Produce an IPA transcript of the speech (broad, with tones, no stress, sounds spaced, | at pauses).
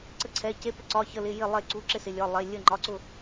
ǀ ə˥˧ ǀʰ ɛ˧˥˧ c e˧˥˧ p ɪ˥˧ ǀ ɒ˧˥˧ ç ə˧˥˧ l ɪ˧˥˧ j ɪ˥˧ lˠ e˥˧ ǀ u˧˥˧ ǁ ɪ˥˧ s ɪ˧˥˧ lʲ ɒ˧˥˧ lˠ e˧˥˧ lʲ ə˥˧ ŋ͡ǃ ɒ˧˥˧ ǀ ʊ˥˧